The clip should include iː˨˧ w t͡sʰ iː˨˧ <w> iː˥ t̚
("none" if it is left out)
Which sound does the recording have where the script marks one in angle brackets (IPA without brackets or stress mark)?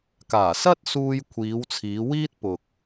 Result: w